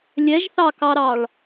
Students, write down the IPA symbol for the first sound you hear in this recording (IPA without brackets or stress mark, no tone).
lʲ